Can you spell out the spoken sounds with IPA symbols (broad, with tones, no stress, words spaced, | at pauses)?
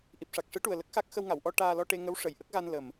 ʔi˨˩p̚ʂa˨˩k̚ʂɨ˧˥ʈu˨˩ə̯ lə˦˥k̚xa˦˥k̚ xə˧wŋa˨˩˨wʔɔ˧ ʈaː˧lɔ˧ʈe˧ŋə˧˥w ʂə˨˩˨jʔə˦˥k̚ɣa˧n lə˨˩m